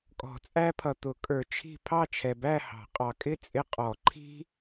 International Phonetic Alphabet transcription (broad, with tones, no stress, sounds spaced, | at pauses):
kʼ ɔ̤˨˩˦ t͡sʼ æ˦ pʰ ʌ˨ t̪ ʊ˨˩˦ kʼ ə˞˨ t͡ʃʰ i̤˥˨ pʰ ɑ˥˨ t͡ʃʰ ɛ˨ b æ˥˨ h ɑ̤˨˩˦ qʼ ɑ˨ kʼ ɪ˥˨ t͡sʼ ɪ˦ qʼ ɔ˨˩˦ ǃʰ i̤˦